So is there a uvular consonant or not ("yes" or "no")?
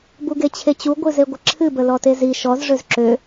no